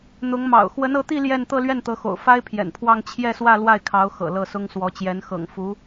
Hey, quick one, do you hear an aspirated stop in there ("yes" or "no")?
yes